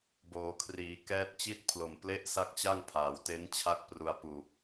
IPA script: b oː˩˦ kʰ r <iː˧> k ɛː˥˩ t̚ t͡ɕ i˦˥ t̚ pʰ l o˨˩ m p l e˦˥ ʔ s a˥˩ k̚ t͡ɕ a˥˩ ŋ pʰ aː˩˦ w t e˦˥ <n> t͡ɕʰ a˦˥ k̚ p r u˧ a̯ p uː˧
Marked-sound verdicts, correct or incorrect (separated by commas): incorrect, correct